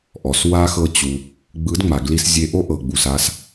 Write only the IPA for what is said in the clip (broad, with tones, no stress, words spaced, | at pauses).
ʔɔ˨s wa˧xɤ˧ t͡ɕu˧ | ɡ͡bɯ˨˦dŋ͡ma˨ ɡli˧s zʲe˧ʔo˦ʔɤ˨ɡ͡bu˨s a˧s